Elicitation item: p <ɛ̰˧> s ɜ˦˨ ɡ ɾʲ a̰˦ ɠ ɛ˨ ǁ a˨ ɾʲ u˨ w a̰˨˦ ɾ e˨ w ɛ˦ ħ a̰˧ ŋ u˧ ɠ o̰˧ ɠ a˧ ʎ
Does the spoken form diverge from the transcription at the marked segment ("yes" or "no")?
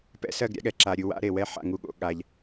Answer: no